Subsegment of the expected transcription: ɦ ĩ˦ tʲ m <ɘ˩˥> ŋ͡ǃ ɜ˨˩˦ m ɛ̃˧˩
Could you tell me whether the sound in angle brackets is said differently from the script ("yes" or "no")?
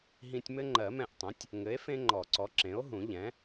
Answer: yes